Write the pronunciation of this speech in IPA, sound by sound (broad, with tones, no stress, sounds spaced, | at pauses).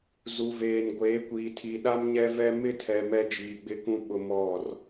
z u˨ v eː˨ n ɡʷ eː˨˦ kʷ iː˨ tʰ i˨ ɗ a˦ m ɲ ɛ˦ v ɛ˦ m ɪ˦˨ tʰ ɛ˨ m ɛ˦ d͡ʒ iː˨ ɡ͡b ɪ˦ k ũ˦ ɓ ʊ˦ m ɔ˦˨ r